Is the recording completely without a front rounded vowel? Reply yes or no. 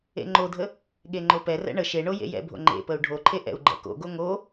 yes